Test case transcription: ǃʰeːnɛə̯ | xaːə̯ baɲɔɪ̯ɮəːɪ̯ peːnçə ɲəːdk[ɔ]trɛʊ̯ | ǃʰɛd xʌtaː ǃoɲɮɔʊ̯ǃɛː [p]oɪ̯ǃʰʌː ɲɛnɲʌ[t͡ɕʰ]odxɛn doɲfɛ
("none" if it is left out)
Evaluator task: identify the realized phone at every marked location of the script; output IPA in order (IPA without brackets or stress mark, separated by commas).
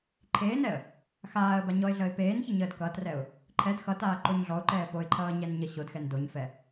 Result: ʌ, p, ɕ